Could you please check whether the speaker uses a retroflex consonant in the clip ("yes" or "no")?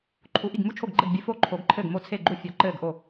no